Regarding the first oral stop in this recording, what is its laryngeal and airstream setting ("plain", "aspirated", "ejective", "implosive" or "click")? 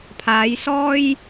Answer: aspirated